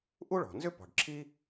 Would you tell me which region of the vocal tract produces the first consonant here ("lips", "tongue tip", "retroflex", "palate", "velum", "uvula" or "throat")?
throat